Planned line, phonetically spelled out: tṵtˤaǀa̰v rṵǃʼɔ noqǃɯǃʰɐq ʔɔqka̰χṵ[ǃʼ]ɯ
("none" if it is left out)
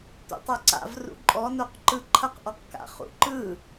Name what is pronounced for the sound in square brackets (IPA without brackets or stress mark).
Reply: ǃ